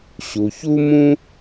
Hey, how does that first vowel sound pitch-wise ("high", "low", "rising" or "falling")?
low